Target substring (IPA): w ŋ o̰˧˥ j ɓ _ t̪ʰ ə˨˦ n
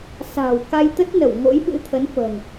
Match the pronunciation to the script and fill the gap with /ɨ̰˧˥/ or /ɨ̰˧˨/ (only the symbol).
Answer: ɨ̰˧˥